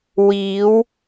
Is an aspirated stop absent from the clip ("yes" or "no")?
yes